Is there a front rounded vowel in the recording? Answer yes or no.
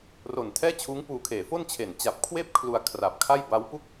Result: no